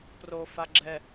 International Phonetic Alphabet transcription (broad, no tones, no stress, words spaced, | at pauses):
pro faɡ͡ǁɛ